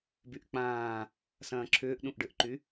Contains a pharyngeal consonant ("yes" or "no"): no